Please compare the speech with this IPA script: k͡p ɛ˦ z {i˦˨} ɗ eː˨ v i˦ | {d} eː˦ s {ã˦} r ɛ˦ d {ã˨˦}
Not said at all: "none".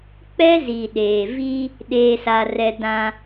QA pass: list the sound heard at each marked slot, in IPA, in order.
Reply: i˨, ɗ, a˦, ã˦

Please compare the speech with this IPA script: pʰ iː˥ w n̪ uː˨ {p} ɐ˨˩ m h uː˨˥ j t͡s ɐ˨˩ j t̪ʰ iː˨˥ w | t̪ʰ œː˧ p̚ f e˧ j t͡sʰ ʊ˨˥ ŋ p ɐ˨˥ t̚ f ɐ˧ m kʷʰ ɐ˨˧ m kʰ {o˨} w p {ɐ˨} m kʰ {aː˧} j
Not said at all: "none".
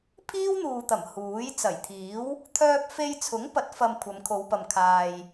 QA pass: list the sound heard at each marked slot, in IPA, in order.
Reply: t̪, o˨˧, ɐ˨, aː˨

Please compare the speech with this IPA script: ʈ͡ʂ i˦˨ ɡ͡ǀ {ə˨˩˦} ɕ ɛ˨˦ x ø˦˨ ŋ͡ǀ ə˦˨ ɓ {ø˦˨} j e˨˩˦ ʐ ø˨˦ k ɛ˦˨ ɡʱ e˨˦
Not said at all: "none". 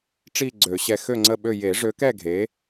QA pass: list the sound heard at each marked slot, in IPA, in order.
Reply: ø˨˩˦, ø˦˨

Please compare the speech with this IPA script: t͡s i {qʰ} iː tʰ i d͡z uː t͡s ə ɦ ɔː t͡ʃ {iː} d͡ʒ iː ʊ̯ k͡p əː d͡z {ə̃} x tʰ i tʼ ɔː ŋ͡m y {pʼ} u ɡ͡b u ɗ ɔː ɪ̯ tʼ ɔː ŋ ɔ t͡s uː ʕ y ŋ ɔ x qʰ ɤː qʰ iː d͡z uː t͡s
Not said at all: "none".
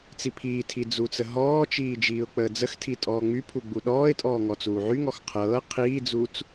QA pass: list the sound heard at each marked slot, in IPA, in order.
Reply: pʰ, iː, ə, pʰ

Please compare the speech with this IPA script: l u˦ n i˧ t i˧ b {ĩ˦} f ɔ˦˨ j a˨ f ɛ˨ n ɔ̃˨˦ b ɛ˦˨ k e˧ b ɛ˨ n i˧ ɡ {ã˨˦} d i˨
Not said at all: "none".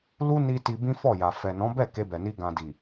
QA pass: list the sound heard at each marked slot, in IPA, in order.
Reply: ĩ˦, ã˨

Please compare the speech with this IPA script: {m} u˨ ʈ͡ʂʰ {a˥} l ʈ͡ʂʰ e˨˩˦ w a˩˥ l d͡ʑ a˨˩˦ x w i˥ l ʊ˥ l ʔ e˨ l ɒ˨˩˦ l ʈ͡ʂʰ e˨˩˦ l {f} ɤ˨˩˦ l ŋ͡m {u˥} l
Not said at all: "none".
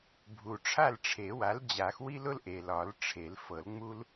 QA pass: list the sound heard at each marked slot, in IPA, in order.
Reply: bʱ, a˥˨, f, u˥

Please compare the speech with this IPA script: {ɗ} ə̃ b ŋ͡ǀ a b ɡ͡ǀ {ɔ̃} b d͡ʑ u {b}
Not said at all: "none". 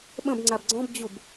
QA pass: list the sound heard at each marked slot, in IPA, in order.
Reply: ɓ, ɔ̃, b

